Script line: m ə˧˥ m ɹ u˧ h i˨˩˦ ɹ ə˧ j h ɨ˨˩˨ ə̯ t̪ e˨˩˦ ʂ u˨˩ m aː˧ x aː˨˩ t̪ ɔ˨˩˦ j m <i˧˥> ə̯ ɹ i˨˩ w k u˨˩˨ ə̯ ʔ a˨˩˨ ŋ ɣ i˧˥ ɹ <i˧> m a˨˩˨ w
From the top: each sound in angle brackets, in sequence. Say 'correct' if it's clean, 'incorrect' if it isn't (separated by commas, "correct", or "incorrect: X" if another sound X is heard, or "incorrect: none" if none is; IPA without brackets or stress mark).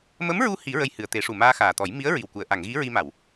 correct, correct